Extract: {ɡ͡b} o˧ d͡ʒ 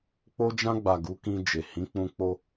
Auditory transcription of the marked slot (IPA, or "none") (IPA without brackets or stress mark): k͡p